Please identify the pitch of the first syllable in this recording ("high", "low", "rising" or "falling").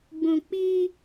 low